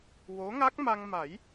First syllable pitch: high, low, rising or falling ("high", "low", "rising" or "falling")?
rising